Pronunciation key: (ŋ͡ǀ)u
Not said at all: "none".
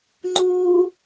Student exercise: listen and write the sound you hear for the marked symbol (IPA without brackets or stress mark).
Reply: ŋ͡ǃ